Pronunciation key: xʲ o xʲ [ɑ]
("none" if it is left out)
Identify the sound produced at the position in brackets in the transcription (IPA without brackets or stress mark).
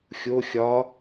ɒ